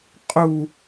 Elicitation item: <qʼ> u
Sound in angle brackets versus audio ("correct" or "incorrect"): correct